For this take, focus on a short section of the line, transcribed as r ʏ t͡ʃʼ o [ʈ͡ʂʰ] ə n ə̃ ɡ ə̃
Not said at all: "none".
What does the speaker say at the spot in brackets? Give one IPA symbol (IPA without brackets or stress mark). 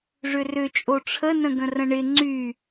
ʈ͡ʂʰ